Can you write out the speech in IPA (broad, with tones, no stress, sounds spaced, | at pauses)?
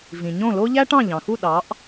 v ĩ˩ ɲ õ˥˩ l o˥ ʎ æ˥ ʈ ɑ̃˥˩ ʎ ɑ̃˩ x u˥˩ ɗ ɑ˩˥ ʔ